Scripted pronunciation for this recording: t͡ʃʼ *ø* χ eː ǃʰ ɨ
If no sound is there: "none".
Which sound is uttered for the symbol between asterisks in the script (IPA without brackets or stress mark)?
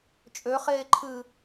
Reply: ø